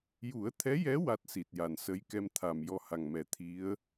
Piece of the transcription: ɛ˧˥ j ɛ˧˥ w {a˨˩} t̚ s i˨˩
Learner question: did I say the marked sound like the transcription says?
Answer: no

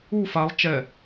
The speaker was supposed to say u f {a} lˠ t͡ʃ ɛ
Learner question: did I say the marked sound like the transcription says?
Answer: yes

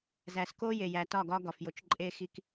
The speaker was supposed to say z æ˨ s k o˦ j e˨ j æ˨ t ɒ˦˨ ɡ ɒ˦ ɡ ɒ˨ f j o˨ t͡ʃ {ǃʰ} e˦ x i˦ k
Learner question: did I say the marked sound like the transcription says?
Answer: no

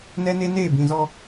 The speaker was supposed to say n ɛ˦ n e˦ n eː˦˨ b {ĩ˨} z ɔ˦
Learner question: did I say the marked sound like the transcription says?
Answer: yes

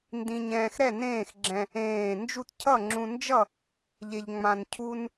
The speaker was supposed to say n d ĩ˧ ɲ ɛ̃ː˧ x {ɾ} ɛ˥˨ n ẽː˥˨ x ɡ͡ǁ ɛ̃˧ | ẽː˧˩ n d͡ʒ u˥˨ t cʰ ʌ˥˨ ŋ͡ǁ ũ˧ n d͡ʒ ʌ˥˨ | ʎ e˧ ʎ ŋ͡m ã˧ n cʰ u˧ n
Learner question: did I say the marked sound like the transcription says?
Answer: yes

